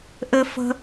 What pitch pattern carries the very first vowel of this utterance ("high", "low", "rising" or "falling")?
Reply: high